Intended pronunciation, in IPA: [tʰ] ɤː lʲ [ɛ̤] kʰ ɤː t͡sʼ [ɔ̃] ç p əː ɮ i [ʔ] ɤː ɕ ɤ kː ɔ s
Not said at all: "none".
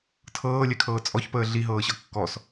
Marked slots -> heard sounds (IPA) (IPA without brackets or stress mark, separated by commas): tʰ, ɛ, ɔ, ɦ